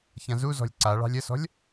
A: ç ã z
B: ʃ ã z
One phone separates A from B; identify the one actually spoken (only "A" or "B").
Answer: A